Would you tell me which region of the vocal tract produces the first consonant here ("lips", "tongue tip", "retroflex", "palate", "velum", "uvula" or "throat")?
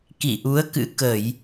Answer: velum